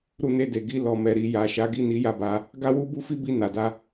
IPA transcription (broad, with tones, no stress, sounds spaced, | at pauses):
ɾ u˧ n e˧ d e˨ ɡ i˧ l ɔ˨ m ɛ˨ ɾ i˨ j a˨ ʃ a˨˦ ɡ i˦˨ n i˨˦ j a˦˨ b a˨˦ | ɡ a˦ w u˦ b u˦ f i˦ b i˧ n a˨ d a˧